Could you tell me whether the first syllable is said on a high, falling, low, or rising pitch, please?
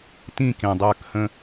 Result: falling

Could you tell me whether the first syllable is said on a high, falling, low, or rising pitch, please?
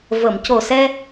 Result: low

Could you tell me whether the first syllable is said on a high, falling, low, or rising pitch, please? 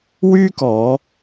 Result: high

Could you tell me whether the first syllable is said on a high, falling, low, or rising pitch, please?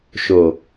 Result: low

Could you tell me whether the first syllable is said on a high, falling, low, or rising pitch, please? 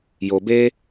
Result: low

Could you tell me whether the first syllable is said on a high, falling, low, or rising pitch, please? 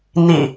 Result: low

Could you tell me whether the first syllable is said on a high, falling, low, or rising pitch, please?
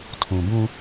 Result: low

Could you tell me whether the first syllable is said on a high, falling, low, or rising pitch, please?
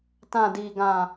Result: low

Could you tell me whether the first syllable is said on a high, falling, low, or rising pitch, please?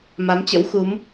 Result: rising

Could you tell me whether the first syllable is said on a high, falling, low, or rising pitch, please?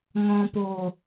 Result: low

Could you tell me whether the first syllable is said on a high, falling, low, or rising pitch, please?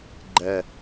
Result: low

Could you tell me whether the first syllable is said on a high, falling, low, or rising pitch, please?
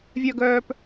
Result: low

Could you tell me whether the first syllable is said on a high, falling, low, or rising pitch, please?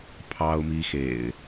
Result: high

